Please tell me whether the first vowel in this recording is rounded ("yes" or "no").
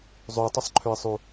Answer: yes